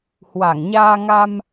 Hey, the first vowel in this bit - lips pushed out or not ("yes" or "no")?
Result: no